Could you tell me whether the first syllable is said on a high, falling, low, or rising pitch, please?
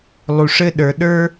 low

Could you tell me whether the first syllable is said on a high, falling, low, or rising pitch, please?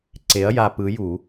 rising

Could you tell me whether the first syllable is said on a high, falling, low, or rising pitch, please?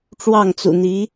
falling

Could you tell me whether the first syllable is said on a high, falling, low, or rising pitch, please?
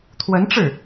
rising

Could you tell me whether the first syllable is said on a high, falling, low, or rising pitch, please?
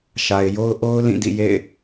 low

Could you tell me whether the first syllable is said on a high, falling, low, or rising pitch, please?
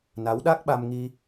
rising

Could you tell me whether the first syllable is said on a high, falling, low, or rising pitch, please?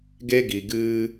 high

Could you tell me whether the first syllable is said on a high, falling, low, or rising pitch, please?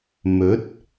rising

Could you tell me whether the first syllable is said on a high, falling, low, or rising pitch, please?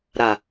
low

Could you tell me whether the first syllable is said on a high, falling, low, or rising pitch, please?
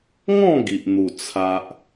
falling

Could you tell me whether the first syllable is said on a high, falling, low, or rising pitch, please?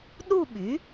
falling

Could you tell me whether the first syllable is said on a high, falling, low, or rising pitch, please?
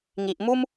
low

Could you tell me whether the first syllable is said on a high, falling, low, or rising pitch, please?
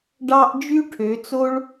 high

